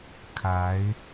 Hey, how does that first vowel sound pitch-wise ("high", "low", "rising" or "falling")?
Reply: rising